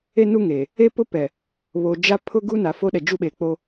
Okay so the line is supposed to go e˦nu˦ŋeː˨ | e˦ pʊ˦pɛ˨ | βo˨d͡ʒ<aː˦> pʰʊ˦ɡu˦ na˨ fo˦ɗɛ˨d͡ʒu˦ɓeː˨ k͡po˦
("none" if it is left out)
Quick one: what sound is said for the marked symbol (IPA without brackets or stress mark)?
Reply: a˦